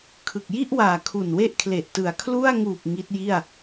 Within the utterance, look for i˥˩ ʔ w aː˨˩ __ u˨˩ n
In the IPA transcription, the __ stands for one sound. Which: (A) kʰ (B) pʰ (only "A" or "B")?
A